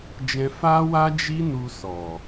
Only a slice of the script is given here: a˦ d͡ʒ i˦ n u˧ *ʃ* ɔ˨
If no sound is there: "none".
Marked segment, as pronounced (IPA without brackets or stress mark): s